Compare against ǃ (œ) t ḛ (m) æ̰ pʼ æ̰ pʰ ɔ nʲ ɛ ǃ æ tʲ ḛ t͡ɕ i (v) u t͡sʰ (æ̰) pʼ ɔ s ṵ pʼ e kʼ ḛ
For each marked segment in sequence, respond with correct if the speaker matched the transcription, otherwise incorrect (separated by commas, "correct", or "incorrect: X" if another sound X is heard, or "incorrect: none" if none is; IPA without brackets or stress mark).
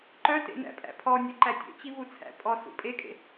correct, incorrect: n, correct, correct